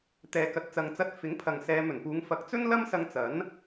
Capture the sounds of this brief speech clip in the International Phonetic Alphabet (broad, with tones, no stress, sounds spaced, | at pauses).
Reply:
t̪ ɛː˨ k ɐ˨ t̚ t͡s ɐ˨ ŋ t͡s ɐ˧ t̚ f ɪ˨˥ ŋ pʰ ɐ˨ ŋ s ɛː˨˧ m ɵ˨˩ n p uː˨˧ ŋ f ɐ˨˥ k̚ t͡s ɵ˥ n l ɐ˥ m s ɐ˧ ŋ t͡s ɐ˨˥ n